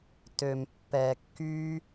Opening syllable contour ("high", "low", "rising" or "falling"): low